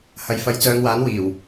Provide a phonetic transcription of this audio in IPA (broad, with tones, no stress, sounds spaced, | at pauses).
h ɐ˨ j f ɐ˨˧ j t͡s œː˨˧ ŋ w aː˨˥ n w iː˨˩ w